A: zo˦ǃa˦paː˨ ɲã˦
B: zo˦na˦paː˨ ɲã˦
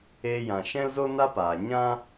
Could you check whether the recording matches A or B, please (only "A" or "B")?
B